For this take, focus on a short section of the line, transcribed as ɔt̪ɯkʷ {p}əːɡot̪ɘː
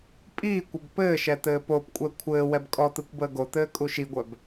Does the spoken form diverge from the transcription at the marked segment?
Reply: yes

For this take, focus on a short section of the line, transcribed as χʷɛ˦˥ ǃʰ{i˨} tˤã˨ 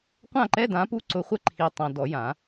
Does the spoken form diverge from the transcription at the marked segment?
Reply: no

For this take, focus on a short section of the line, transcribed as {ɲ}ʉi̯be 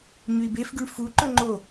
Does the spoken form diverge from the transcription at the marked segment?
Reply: no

